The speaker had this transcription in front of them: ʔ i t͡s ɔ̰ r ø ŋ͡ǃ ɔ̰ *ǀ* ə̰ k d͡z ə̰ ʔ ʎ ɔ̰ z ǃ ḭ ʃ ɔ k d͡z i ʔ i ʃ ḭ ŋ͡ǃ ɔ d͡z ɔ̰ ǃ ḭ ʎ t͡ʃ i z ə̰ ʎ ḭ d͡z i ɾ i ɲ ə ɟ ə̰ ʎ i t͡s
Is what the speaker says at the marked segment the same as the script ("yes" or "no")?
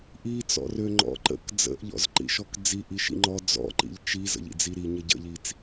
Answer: no